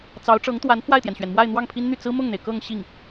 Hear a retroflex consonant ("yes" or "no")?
yes